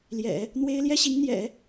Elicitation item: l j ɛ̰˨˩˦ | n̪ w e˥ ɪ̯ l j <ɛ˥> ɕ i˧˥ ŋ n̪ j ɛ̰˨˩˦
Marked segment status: correct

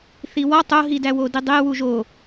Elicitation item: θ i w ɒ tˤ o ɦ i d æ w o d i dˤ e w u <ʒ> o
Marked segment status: correct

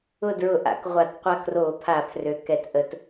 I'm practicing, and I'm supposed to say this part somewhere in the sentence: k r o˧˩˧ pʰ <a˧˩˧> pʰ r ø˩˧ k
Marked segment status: correct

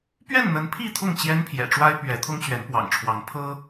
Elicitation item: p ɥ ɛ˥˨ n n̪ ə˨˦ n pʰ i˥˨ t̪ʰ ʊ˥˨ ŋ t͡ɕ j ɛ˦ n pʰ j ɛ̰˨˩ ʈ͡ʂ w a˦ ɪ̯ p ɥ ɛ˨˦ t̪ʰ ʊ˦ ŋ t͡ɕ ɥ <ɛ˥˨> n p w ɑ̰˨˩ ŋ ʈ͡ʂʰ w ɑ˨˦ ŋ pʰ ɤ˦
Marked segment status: incorrect: ɛ˨˦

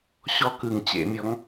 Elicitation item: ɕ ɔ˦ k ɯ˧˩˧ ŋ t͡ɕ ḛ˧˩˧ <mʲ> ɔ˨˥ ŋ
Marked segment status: correct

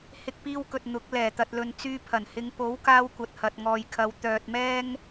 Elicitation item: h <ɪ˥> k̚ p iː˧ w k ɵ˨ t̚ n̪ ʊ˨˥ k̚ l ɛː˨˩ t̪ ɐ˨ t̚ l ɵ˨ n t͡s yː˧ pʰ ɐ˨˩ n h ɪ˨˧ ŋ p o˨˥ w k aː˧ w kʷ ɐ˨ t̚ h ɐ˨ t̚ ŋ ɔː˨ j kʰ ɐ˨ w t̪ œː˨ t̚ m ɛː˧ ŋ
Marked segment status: incorrect: ɪ˧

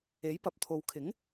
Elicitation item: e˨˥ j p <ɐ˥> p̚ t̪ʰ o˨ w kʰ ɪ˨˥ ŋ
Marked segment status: incorrect: ɐ˨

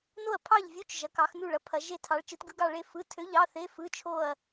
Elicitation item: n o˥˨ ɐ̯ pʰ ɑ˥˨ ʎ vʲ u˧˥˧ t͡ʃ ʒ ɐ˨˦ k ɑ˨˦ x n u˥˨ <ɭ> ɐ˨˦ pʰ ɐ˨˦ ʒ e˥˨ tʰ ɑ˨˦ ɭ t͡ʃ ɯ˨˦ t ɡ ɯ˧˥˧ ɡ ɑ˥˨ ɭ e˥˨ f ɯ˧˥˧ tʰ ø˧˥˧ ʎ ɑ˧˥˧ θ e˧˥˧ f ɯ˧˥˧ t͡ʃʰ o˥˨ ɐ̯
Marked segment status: correct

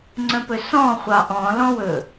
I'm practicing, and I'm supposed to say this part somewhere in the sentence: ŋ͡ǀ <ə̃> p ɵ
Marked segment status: correct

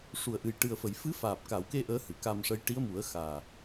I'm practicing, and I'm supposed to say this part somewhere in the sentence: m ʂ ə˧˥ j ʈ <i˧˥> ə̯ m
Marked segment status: correct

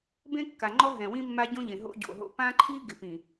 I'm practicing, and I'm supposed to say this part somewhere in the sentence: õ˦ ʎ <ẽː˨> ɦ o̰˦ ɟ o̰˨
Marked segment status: incorrect: ẽ˨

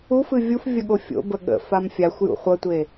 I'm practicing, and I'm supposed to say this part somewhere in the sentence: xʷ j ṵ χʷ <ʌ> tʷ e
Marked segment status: correct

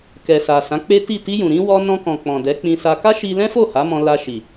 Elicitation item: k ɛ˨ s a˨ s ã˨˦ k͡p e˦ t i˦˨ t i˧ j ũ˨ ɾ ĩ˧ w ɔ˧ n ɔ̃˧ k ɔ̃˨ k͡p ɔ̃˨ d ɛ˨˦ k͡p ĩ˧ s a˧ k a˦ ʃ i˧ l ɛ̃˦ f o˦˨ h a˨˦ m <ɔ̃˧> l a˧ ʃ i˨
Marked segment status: correct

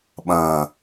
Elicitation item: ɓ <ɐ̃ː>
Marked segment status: correct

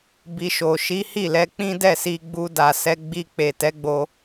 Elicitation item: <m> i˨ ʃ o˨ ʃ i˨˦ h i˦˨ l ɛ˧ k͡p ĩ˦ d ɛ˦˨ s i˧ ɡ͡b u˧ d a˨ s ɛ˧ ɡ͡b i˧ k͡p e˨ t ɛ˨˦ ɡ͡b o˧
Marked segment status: incorrect: b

